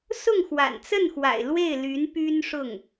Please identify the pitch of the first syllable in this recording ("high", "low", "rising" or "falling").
falling